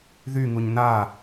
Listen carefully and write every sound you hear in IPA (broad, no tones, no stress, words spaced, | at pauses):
ðyŋuɲ na